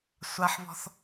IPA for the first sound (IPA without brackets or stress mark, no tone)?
sʷ